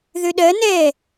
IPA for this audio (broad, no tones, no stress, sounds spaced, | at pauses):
ð ø ɗ ɜ n ɛ